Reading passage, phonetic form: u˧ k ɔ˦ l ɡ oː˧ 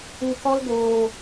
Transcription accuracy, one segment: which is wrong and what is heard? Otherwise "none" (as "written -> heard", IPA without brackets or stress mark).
none